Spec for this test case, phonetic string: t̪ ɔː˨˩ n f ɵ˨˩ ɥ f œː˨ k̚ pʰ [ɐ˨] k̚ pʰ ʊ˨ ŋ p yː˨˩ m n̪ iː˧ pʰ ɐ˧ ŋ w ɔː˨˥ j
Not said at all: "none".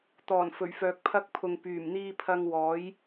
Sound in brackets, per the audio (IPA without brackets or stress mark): ɐ˧